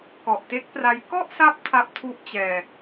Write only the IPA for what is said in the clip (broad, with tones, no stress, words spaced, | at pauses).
kɔ˨˩ʔte˦˥k̚pra˦˥j kɔ˥˩ʔsa˦˥p̚ tʰa˦˥p̚ tʰu˦˥ʔ t͡ɕɛː˧